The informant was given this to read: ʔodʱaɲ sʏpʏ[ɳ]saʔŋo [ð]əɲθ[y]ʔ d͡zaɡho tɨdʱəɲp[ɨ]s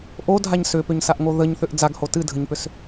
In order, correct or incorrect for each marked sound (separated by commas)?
incorrect, correct, incorrect, incorrect